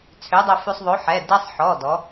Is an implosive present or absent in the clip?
absent